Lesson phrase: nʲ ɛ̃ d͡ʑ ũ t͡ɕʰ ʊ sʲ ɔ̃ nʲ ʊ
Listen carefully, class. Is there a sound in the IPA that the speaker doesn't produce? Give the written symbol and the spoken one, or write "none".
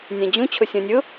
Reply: none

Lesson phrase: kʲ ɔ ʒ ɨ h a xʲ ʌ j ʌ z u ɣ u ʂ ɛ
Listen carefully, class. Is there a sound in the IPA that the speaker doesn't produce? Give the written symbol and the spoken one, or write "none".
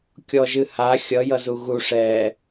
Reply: none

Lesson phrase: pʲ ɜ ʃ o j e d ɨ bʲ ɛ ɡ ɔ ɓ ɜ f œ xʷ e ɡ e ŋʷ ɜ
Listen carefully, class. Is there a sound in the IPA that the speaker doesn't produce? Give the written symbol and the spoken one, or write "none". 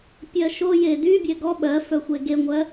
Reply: ɨ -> y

